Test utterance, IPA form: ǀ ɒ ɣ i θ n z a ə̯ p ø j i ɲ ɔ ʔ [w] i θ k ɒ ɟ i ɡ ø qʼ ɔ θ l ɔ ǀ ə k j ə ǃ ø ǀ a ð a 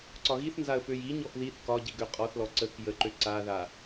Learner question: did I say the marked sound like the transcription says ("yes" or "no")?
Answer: no